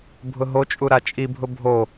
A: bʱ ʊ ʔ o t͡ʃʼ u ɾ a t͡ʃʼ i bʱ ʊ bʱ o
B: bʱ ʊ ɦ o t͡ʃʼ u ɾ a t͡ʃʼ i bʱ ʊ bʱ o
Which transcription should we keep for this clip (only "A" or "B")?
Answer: B